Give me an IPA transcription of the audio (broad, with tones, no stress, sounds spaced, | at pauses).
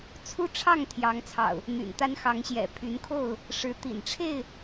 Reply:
t͡sʰ u˦ ʈ͡ʂʰ ɑ˥˨ ŋ t̪ʰ j ɑ˨˦ ŋ t͡sʰ ɑ̰˨˩ ʊ̯ | n̪ y̰˨˩ n t̪ a˦ n x ɑ˨˦ ŋ ɕ j ɛ̰˨˩ pʰ y˨˦ n kʰ o˥˨ ʊ̯ | ʂ ɻ̩˨˦ t̪ ḭ˨˩ n ʈ͡ʂʰ e˥˨ ɪ̯